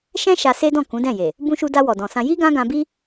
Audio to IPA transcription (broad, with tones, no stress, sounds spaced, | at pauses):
ʃ ɛ̃˦ ʃ a˧ s e˦ d ɔ̃˦˨ k ũ˨˦ d ɛ̃˦˨ j e˨ | b ũ˧ ʃ u˧ d a˧ w ɔ˨ d ɔ̃˨ s ã˧ j i˦ ɡ ã˦ ɡ ã˧ b i˦